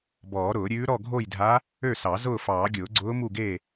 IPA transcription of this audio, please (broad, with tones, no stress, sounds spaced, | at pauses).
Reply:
b ɔː˨˩˦ ɾ ʊː˨˩˦ ɾʲ ʉː˧˥ ɾ ɔ˥˨ ɡʱ o˥˨ j dʱ a˧˥ | ø˥˨ s ɑ˨˩˦ z ʊː˥˨ f ɑː˨˩˦ ɡʲ ʊː˨˩˦ ɡ͡ǀ ʊː˧˥ m u˥˨ ɡ e˥˨